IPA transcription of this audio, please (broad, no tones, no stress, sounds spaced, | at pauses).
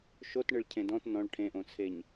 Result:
ʃ o t ɳ ɨ ɭ cʰ ẽ d ɔ̃ t n ɔ̃ ɭ ʈʰ ẽ ʔ õ t͡sʰ e ɲ